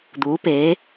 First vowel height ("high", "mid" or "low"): high